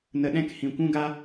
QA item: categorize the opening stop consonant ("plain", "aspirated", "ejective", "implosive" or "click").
implosive